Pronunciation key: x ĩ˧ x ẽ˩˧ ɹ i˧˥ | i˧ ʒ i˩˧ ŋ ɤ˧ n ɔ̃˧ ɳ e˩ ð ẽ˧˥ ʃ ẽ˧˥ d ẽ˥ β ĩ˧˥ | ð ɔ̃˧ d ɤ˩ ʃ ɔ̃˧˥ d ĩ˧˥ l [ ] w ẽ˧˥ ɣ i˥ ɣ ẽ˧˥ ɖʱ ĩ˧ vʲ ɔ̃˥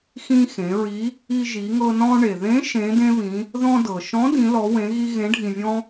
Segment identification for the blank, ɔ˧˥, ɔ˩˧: ɔ˧˥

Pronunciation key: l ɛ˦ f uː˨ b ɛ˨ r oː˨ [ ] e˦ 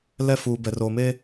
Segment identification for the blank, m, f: m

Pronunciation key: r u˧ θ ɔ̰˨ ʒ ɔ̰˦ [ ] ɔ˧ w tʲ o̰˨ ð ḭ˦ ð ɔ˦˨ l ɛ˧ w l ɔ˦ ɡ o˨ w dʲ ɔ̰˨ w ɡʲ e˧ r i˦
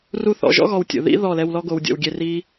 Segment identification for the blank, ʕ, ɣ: ɣ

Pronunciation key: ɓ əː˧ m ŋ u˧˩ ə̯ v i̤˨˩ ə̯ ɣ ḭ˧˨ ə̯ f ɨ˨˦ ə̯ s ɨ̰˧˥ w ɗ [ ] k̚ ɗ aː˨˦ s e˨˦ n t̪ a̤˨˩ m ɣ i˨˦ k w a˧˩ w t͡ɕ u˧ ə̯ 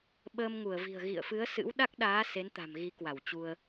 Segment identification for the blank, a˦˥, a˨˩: a˦˥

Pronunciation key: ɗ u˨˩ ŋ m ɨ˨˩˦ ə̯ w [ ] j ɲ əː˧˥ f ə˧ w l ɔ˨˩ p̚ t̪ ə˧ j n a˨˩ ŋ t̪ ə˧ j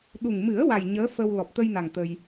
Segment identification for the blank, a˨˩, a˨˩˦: a˨˩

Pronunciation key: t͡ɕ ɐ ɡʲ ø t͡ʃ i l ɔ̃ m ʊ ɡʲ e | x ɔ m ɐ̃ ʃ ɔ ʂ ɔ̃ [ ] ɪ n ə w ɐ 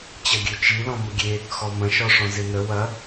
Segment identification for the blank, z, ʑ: z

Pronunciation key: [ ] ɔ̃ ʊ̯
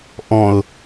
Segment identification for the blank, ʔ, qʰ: ʔ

